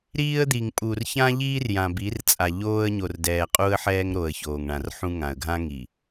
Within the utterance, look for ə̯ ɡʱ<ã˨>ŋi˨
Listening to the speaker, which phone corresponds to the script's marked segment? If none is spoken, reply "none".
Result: ã˦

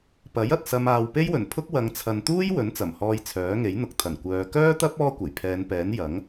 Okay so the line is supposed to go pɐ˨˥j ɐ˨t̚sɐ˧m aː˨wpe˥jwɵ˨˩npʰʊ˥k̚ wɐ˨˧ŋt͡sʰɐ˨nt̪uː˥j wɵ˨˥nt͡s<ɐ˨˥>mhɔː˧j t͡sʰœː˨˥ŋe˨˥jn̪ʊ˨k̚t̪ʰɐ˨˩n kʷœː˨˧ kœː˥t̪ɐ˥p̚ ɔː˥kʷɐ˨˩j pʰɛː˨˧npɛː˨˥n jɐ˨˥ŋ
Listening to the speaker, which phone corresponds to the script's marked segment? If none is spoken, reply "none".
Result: ɐ˨˩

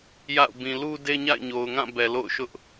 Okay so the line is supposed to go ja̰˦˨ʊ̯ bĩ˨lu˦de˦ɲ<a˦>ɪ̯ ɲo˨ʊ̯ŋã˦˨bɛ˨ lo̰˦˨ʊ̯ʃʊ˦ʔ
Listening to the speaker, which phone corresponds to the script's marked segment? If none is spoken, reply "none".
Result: a̰˦˨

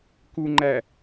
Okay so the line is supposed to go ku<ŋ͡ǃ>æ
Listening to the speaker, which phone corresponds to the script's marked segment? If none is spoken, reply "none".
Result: ŋ͡ǃ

